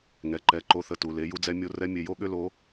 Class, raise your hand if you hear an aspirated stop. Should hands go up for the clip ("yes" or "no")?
no